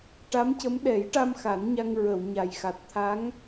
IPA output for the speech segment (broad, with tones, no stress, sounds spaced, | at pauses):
ʈ a˧˥ m c ə˧˥ m ɗ ɛ˨˩˦ j ʈ a˧ m x a˨˩˦ n ɲ a˧ ŋ ɹ ə˨˩˨ w ɲ a˨˩ j x a˨˩ t̚ t̪ʰ a˧˥ ŋ